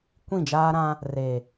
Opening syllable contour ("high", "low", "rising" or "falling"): falling